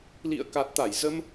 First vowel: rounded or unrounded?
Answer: unrounded